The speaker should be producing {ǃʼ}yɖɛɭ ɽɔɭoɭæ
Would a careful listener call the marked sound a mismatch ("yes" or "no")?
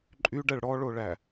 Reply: no